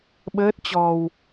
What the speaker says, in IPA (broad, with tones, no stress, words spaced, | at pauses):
ɓəː˦˥t̚t͡ɕɔ˧w